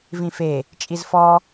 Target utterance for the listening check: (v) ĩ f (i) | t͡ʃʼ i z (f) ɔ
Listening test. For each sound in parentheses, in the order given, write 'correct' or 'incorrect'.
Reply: correct, incorrect, correct

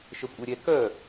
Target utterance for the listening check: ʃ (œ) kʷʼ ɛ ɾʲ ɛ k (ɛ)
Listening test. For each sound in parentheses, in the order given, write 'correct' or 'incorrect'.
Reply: correct, incorrect

